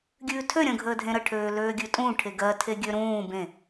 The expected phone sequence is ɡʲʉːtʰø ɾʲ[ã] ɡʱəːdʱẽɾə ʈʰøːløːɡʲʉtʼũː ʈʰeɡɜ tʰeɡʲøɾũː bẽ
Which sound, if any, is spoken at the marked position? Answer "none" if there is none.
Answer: ə̃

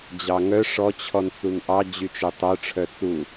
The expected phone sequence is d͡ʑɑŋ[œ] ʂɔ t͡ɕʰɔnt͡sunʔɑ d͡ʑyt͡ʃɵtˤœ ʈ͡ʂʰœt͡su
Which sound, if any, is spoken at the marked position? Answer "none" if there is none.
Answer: œ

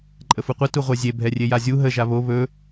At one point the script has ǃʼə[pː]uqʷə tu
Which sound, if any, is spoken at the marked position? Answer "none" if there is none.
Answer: f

